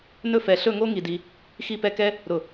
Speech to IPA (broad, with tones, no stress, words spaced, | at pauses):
nɵ˥˧ fɛ˧ ɬɵ˥˧ŋo˥ ŋi˧di˧ | xi˥˧pɛ˥˧kɛ˥ | ɾʊ˧˩